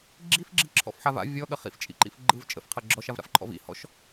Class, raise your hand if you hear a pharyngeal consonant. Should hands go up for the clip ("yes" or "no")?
yes